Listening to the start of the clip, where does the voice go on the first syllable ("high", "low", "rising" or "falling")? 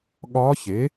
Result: rising